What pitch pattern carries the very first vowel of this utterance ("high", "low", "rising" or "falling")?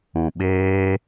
low